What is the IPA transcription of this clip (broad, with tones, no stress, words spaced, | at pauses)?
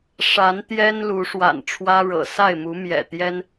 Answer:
ʂa˨˦nt̪jɛ˦n lu˨˦ʂwa̰˨˩nʈ͡ʂʰwä˦ɻɤ̰˨˩ sa˥˨ɪ̯mu˨˦mjɛ̰˨˩t̪jɛ˦n